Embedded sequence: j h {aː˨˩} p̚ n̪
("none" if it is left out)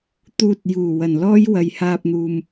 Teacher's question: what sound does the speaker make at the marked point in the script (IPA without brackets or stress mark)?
aː˧